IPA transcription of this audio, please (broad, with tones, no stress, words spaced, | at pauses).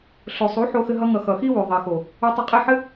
ɬo˨sˤu˨˦ ħo˧xɘ˧ɦʌ˧ŋʌ˨ xʌ˨xi˦ wʉ˨ðˤe˨xo˨ | u˧tˤɘ˧qʼe˦˨ħɘ˦